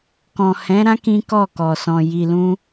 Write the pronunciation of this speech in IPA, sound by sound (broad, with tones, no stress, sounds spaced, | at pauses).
k ɔ̃˨ h ɛ̃˨˦ ɾ ã˦ k ĩ˦ k ɔ˦˨ k ɔ˨ s ɔ̃˨ j i˨ l ũ˧